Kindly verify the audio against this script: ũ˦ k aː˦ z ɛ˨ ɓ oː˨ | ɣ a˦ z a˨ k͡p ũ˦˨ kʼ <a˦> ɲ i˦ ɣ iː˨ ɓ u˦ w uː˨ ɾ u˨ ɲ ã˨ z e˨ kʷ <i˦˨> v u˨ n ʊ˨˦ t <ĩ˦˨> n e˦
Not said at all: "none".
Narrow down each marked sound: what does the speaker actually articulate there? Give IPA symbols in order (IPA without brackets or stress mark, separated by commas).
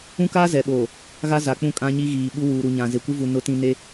ã˦, i˦, ĩ˨